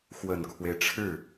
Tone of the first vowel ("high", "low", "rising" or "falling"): low